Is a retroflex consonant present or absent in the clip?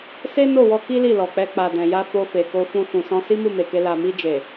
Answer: absent